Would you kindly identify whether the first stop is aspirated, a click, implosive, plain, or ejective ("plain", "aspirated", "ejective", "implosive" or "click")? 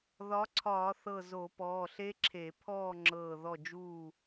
click